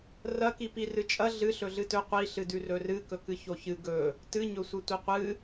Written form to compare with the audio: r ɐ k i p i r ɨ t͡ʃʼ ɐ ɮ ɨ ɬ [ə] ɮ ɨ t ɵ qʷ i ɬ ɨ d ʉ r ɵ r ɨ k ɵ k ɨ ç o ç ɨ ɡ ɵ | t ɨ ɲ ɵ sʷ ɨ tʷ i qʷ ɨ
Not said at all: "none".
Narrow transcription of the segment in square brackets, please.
ɵ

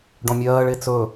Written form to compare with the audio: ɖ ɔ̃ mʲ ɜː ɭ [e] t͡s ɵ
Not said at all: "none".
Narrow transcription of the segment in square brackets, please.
e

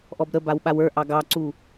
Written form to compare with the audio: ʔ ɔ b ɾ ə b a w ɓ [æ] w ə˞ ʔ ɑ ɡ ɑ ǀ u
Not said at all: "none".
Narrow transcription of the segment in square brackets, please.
a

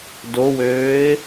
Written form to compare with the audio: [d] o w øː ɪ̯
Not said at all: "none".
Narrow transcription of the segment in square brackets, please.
d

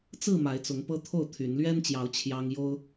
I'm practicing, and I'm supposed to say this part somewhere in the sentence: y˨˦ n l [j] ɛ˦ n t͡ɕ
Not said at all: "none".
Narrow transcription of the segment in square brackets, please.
ɥ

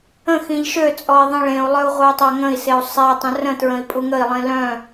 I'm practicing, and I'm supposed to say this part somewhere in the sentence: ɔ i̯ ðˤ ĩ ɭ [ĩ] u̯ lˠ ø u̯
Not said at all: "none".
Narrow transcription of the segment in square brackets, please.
ẽ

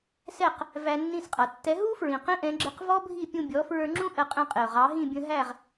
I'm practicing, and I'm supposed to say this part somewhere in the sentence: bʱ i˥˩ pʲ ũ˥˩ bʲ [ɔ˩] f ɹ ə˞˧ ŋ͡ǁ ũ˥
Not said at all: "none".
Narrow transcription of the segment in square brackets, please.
ɔ˩˥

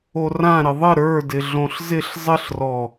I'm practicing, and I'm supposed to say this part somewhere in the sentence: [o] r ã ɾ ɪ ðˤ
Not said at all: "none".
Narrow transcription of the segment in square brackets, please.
o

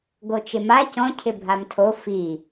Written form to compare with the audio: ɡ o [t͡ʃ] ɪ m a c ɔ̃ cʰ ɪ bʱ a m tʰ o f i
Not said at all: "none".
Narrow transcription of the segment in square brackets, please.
t͡ʃ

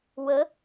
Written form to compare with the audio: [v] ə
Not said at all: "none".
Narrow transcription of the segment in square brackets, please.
w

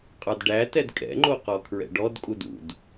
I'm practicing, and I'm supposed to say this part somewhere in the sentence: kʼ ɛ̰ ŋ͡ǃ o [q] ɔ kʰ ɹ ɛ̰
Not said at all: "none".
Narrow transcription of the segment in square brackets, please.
q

